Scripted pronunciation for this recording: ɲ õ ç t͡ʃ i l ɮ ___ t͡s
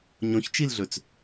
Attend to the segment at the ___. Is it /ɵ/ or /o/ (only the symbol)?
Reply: ɵ